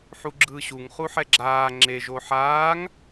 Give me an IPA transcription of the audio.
ħ u ɡ͡ǁ ɯː ɕ u ŋ χ u ħ ɛ ɡ͡ǁ aː ŋ͡ǁ e ʒ o ħ aː ŋ

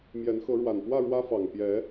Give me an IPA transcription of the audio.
m j ɛ˨˦ n x ɤ˨˦ ɻ w a˨˩ n p w ä˥˨ ɻ w ä˦ f ɑ˨˩ ŋ p j ɛ˨˦

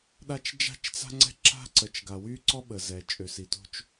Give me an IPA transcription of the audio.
ɗ a˦ t͡ʃ d͡ʒ a̤˦ t͡ʃ t͡s a̤˦ ŋ͡ǀ ɛ̤˦ ǁ a̤˦ ǀ ə˨ t͡ʃ ɡ a˨ w y˦ ǀ ɔ˦ ɓ ə˨ z ɛ˨ t͡ʃʼ ø˨ s i˨ t o̤˦ t͡ʃ

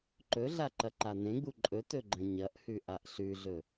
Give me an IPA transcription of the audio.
ǃ ɵ ɮ a ǃ ɐ ǃ a n ẽ ɡ͡b u ǃʼ ɵ t ɵ ɡ͡ǃ ɐ̃ ɲ ɐ ʔ h ʉ ʔ a ʔ ɬ ʉ ɮ ɵ

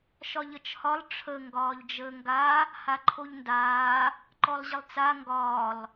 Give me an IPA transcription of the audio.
ʃ ɒ ʎ ə t͡ʃ h ɒ lˠ ʈ͡ʂʰ ə ŋ ɡ ɒː ʎ d͡ʒ əː ŋ ɡ a | h a ǃʰ o ʎ n d aː | ǃ ɔ lˠ ʑ ə lˠ t͡s a ŋ ɡ ɒː lˠ

